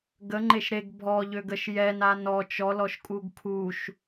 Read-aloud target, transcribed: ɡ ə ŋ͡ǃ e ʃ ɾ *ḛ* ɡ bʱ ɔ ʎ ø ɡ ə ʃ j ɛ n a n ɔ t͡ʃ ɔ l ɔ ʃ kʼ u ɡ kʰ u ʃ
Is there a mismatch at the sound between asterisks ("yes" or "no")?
yes